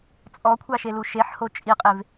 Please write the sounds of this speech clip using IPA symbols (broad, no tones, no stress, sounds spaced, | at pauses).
t͡sʼ ɔ kʷʰ a ʃ e l u ʃ e ħ h o t͡ʃʼ i qʼ e v